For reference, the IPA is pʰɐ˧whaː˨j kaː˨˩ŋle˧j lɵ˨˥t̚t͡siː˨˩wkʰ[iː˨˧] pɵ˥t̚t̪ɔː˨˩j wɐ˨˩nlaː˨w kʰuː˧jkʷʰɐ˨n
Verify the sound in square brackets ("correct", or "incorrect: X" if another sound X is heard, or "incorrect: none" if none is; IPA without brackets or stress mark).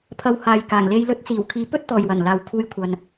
correct